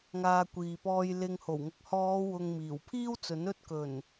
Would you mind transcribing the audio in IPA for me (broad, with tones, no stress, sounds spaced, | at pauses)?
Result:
ŋ aː˨ kʷ iː˨ p ɔː˧ j l ɪ˧ ŋ h o˨˩ w ŋ ʊ˨ k̚ h ɔː˨˧ w ʊ˨ ŋ m iː˨˩ w pʰ iː˥ w t͡s ɵ˨˥ n ɵ˧ t̚ k ɵ˨˩ n